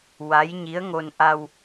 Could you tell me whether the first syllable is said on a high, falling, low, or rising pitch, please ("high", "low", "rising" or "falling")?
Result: rising